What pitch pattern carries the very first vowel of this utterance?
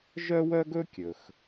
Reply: high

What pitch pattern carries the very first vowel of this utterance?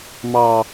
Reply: low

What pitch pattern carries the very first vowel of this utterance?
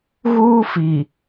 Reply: high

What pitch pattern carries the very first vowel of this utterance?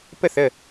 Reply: falling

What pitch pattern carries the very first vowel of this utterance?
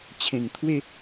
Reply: low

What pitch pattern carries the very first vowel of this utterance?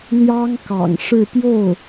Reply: high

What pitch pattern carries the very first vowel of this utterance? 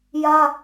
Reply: high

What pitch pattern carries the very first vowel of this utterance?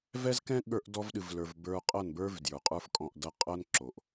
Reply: high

